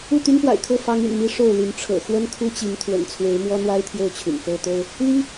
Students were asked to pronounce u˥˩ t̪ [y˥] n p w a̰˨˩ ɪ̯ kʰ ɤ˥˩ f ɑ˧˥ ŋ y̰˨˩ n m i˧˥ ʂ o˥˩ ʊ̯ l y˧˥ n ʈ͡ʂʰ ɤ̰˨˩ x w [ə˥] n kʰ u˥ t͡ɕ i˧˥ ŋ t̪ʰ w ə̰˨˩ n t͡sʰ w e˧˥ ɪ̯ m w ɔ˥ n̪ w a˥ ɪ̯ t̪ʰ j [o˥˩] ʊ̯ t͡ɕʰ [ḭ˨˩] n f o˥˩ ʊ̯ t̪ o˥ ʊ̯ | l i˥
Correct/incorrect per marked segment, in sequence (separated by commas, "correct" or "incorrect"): correct, correct, correct, incorrect